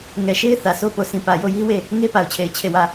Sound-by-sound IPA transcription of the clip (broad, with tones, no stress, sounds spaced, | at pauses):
ŋ ɛ˨ ʃ e˦ ɪ̯ θ ä˨ sʰ o˦ p o˨ sʰ ĩ˨ p ä˨ j o˦˨ j i˦ w e˦˨ | ŋ e˦ p a˨ ʊ̯ t͡ɕʰ e˨ ɪ̯ t͡ɕʰ e˦˨ w ä˦˨